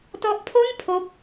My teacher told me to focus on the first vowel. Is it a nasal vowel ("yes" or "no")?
no